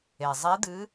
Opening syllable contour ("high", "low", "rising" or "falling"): low